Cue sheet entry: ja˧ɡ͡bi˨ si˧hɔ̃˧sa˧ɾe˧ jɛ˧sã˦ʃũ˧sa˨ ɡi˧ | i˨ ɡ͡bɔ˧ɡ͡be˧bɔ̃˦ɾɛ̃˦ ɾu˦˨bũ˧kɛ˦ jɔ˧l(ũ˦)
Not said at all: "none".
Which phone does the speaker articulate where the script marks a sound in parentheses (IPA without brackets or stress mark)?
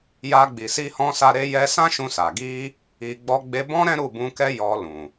ũ˨